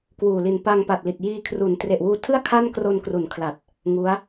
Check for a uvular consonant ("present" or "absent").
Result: absent